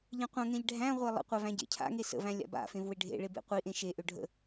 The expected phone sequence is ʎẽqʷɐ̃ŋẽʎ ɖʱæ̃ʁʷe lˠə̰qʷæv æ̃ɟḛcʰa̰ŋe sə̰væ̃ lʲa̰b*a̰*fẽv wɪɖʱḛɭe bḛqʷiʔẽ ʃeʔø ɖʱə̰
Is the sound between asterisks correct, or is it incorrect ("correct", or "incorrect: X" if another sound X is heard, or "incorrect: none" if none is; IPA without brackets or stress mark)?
correct